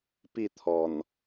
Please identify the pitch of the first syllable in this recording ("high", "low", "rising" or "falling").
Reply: falling